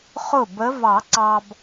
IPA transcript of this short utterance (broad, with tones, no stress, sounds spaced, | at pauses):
χ ʊ˥˩ b ə˧˥ v ɑ˨˩˦ ǀ ɑ˨ b